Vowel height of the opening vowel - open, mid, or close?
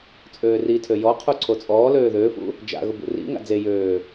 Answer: mid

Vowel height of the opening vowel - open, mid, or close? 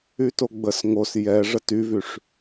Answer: close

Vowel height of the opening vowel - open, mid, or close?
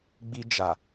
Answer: close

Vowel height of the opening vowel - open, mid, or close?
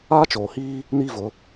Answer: open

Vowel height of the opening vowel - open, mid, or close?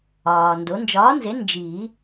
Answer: open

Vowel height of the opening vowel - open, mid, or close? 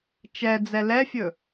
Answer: mid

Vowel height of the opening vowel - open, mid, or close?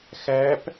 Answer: open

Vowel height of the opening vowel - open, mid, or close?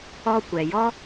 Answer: mid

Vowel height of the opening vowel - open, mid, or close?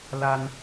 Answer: open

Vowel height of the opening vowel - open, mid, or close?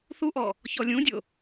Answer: close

